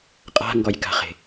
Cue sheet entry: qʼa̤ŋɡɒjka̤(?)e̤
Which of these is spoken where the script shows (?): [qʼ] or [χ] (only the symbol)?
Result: χ